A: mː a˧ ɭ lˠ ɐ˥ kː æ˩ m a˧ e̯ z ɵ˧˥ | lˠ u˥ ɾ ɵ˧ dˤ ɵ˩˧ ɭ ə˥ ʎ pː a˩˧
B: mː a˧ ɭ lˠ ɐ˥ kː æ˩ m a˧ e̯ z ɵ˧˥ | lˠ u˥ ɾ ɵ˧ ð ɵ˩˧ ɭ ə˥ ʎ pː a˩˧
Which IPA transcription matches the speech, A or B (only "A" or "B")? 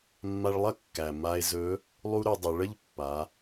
A